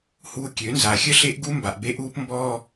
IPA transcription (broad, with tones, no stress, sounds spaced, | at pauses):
h uː˦ kʲ ø˨˦ n z a˨ xʲ ə˦ ɬ e˦ ʔ ɡ u˦ m b a˨ ʔ b e˦ ʔ uː˦ p m b ɔː˦